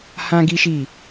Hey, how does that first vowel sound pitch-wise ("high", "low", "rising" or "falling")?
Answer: high